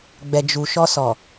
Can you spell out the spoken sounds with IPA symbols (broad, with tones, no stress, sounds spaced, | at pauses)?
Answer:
ɡ͡b ɛ˨ d͡ʒ u˨ ʃ ɔ˧ s ɔ˨